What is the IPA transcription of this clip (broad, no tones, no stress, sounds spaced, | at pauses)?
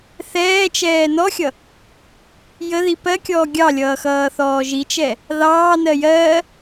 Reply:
θ ɛː t͡ʃ ɛː n ɔ xʲ ʌ | j ə ð i p ɜ kʲ ɔː ɡʲ ɑ lʲ ʌː x ʌː θ ɔː ʒ i t͡ʃ ɛ | ð ɑː n ɜ j ɜ